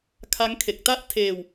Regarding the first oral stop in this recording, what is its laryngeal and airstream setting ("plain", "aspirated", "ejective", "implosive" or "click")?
aspirated